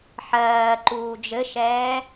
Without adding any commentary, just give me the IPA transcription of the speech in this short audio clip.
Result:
ħ ɜː ǃ uː d͡ʒ ɘ ʃ ɛː

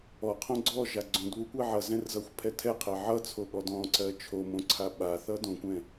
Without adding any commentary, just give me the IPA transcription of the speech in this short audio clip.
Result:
ɔ qʰ õ ɡ͡ǀ ɔ ʒ a ɡ͡ǀ õ d β u kʷ ɛ ʕ ʌ z ɛ̃ r z ʌ xʷ pʰ ɛ tʰ ɛ qʰ ɛ ʕ ʌ t͡sʰ o ɠ ɔ d ɔ̃ ǀ ɜ t͡ʃʰ o m õ ǀʰ a ɓ a θ ʌ d õ kʷ ɛ̃

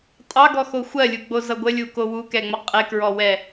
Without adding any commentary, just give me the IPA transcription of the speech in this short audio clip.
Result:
tʼ ɑ ɡ ɔ x o xʷ ɜ lʲ u ɡ͡b o z ʌ ɡʷ ə lʲ u k o w u k ɛ ŋ͡m ʌ qʼ e k ɹ ɔ w ɛ

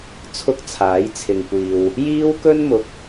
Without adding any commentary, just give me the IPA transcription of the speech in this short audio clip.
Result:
t͡sʰ ʊ˥ k̚ t͡sʰ aː˨˥ j t͡sʰ ɪ˨ ŋ kʷ iː˨ w | j iː˥ w k ɵ˥ n m ʊ˨ k̚

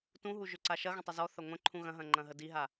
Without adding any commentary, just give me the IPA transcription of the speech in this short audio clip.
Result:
t ũ ɦ u ʒ ʏ ǀ a ʃ ɐ ɣ ə̃ tˤ ʏ z ɔ θ ɐ ŋʷ ə̃ ǃʰ ũ ɣ ɐ̃ ɦ ɐ̃ ŋ͡ǃ ɐ̃ ɦ ə d i ɦ a

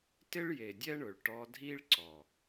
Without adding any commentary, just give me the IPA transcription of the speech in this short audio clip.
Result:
t ɪ˦ ɭ j e˨ dʲ ɛ˦ ɳ ʊ˨ ɭ ʈ ɔ˧ dʱ i˦ ɭ ǀ ɔ˨

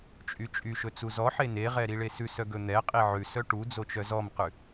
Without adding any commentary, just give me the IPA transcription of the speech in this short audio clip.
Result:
t͡ʃʼ y t͡ʃʼ y ʃ ɵ t͡s u z ɔ ħ e n e ʁ ɛ ɾ i ɭ e s ʉ s œ ɡ ɵ n̪ ɛ qʼ i ʕ ʉ s œ ʈ u d͡z o t͡ʃ œ z ɔ m q ʉ

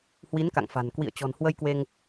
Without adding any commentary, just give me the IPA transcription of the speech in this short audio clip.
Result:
h w i˨˦ n k a̰˧˨ ŋ f a̤˨˩ n k w ḭ˧˨ ə̯ t͡ɕ ɔ̤˨˩ n h w ə˧ j k w e˧ ŋ

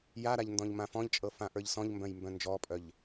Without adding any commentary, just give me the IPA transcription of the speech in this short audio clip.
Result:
j a ɾ a ʎ n d ɔ̃ ʎ m ã f ɔ̃ ʎ t͡ʃʼ ɤ f ã ʔ ə˞ ʎ s ɔ̃ ʎ m b œ̃ j m b œ̃ n d͡ʒ ɔ pʼ œ ʎ

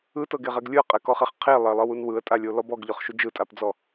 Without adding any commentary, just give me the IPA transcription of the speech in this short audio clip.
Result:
ɯ t ɤ ɡ e ʁ ɛ ɡ lʲ ɯ ə̯ qʼ ɛ k ɔ χ e χ qʰ e lˠ e lˠ ɤ w u n w ɯ ə̯ tʼ a lʲ o l ɔ b ɔ ɡ ʎ ɔ χ ʃ u d͡ʒ ɯ tʼ a p d͡z ɔ

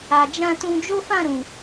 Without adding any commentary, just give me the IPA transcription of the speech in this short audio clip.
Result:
a˨ d͡ʒ ã˧ t ũ˧ d͡ʒ o˦ f ã˦˨ ɾ ũ˨

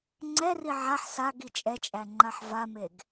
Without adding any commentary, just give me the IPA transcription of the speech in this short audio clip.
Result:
ŋ͡ǀ ɛ r i ʕ a ħ s a ɡ i t͡ʃʼ ɛ t͡ʃʼ æ ŋ͡ǃ a ħ v a m e ɡ

